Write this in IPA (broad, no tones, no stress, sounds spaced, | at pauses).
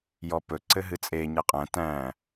j ɔ p ɵ ǀ ɘ ɦ ɨ t͡sʼ e ɲ e qʼ æ̃ t æ̃